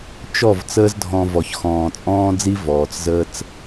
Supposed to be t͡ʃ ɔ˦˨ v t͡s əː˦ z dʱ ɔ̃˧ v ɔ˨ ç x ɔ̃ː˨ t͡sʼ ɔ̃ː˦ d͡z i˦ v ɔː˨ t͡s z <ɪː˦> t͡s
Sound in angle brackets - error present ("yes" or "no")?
yes